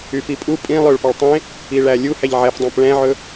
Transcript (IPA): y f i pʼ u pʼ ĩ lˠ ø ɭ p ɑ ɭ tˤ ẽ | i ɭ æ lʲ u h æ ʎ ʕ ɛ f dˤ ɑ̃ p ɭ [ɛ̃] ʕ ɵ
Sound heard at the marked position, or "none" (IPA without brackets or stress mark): ɛ̃